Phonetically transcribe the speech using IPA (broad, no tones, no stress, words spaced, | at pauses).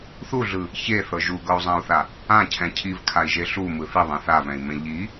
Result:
θuɮɯ | çeθɤ ʒuɡɤu̯zˤãu̯θa | ãcʰɛ̃ cʰivkʰai̯ʒe ɬumɯ θiðˤã θavɛ̃i̯mẽ ʎi